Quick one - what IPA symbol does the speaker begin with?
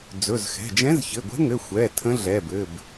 d͡z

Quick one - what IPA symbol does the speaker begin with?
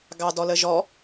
ɡ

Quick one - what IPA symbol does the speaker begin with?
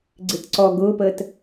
ɡ͡ǀ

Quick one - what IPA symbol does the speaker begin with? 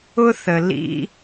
ʊ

